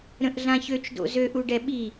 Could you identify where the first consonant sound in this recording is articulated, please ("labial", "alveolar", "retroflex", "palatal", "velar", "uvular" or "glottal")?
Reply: alveolar